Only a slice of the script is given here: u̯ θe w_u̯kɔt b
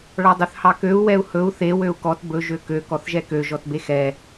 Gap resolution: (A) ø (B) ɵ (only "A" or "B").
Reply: A